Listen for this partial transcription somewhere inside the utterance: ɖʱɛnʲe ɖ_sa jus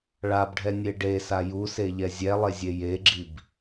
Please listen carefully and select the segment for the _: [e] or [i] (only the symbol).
e